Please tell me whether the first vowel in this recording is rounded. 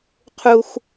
yes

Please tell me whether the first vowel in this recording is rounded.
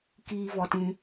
no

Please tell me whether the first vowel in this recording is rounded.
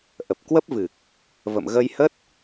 no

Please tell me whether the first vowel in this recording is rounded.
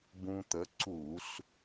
yes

